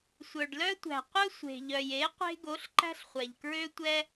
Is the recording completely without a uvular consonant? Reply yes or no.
no